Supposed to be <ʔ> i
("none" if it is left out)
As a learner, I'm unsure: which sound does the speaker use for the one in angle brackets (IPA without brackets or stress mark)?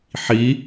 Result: ħ